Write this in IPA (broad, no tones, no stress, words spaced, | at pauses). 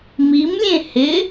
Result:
mimlʲẽ hɪ